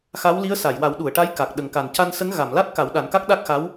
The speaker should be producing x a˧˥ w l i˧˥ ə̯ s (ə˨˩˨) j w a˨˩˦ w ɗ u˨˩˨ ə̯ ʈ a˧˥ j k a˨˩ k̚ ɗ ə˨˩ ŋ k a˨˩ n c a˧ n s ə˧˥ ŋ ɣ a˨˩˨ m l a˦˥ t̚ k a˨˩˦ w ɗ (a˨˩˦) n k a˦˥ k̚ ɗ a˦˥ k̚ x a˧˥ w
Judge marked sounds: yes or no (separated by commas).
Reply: no, yes